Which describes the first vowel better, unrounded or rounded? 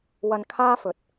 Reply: unrounded